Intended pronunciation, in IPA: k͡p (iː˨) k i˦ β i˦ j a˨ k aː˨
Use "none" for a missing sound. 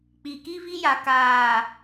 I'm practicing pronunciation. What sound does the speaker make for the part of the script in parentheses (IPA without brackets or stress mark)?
i˨